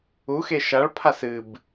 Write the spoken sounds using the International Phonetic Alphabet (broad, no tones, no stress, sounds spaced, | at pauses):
u x e ʃ a ɭ pʰ a s ɨ b